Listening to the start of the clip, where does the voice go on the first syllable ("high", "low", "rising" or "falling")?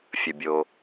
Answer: low